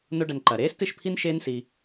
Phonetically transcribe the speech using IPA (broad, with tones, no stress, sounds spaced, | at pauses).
n o˦ ɖ ɐ˧ n ǃ ɐ˨ ɾ eː˦ s t ɨ˦˨ ʃ pʰ i˦ n ʃ eː˦ n s i˧